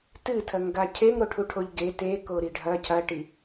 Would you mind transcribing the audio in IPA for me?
t ɨ tʰ ɐ ŋ ɡ a cʰ e ŋ ɾ o ʈʰ u ʈʰ o ʎ ɡ e t e k o ɾ i ɖʱ ɐ cʰ ɐ ʈ i

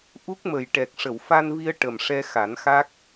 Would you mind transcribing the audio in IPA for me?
ʔ u˦˥ k̚ m ə˨˩ j ʈ ɛ˨˩ k̚ ʂ ə˨˩˨ w f a˧ n v i˧ ə̯ ʈ ə˨˩ m ʂ ɛ˧ x a˨˩˦ n x a˦˥ k̚

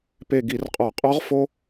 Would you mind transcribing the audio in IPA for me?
p e˧˩ ɡ i˧˩˧ r qʼ ɒ˧˩˧ qʼ ɒ˧˥ ʁ f o˧

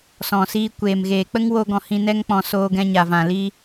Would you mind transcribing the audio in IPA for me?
s ɔ̃˨ s iː˧ kʷ eː˨ m ɣ eː˨ k͡p ə˦ ŋ w o˦ ɡ ɔ̃˧ h ĩ˧ n ɛ˦ ŋ k͡p ɔ̃˧ s oː˧ ɡ ɛ̃˧ ɲ a˨ v ã˨ l i˧

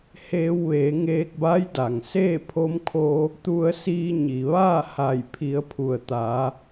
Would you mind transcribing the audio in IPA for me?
h eː˧ w ʋ eː˩˧ ŋ eː˧ k̚ b a˧˥ j d a˩ ŋ s eː˥˨ pʰ o˧ m kʰ o˧ | t̪ u˧ ə̯ s iː˧ ɲ i˩ ʋ aː˥˨ h a˧˩ j pʰ i˩˧ ə̯ pʰ u˩ ə̯ t̪ a˩˧

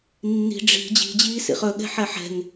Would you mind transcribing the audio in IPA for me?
nː i̤ ɖ͡ʐ i̤ d͡ʑ i̤ d͡ʑ iː s ḭ χ ɵ ɠ ɛ̤ ħ ɛ ħ ɛ̤ ŋ

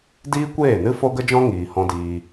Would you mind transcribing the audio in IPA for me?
d iː˦ kʷ eː˦˨ n ɨ˦ f o˦ ɡ ə˦ d͡ʒ ɔ̃˦ ŋ iː˨ h ɔ̃˧ d iː˧

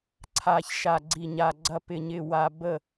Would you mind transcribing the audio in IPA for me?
ǀʰ a˨ ç ʃ a˨ ɡ͡ǀ i˨ ɲ a˨ ɡ͡ǀ ɐ˨ p ɪ˨ ɲ ɪ˨ w a˨ b ə˦˨

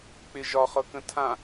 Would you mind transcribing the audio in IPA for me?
k͡p ɪ ʒ ɒ χ ɤ k ə̃ tʰ ã

